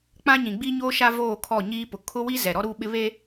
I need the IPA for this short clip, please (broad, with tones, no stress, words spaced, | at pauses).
k͡pã˦ ɲĩ˨ɡ͡bi˦ɲoː˦ʃa˦ voː˦˨kʰɔ˦˨ɲiː˦ pʊ˨kʰʊ˦wi˦ zɛ˨ɾɔ˦ ɾu˦ ɓɪ˦βe˦